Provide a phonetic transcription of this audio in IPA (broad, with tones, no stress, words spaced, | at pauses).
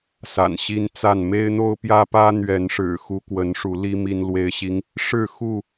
sa̰˨˩nɕi˦nt͡sa˥˨n me˦ɪ̯n̪o˦ʊ̯pjä˦ pä˦ n̪ɥɛ˨˦nʂɻ̩˨˩ xu˦kwə˨˦nʂu˨˦li˦ mi˦nlwe˦ɪ̯ɕi˦ŋ | ʂɻ̩˥˨xu˥˨